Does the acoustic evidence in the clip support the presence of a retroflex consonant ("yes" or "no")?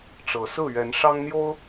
yes